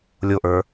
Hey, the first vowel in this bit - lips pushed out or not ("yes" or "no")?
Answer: yes